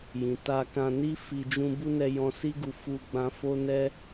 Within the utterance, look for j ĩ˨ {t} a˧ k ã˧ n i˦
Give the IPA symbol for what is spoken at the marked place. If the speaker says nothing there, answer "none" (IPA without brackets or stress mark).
t